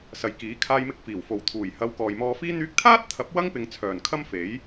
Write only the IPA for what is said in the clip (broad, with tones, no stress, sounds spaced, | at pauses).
s ɐ˨ j k iː˨˥ kʰ aː˧ j m ɪ˧ k̚ f iː˨˩ w f o˨ w t̪ʰ uː˨˩ j h ɐ˨˧ w k ɔː˨ j m ɔː˧ f iː˥ n̪ yː˧ k̚ t̪ʰ aː˥ t̚ t̪ʰ ɐ˨˥ p̚ w ɐ˥ ŋ p ɪ˨˧ ŋ t͡sʰ œː˨˩ n kʰ ɐ˥ m f e˨˥ j